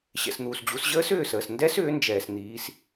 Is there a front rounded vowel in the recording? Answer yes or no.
yes